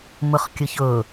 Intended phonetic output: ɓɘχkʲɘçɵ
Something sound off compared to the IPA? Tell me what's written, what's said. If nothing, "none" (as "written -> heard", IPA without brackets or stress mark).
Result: ɓ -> m